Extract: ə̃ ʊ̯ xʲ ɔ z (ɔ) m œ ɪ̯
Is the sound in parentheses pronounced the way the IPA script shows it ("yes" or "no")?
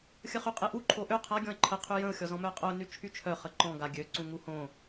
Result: no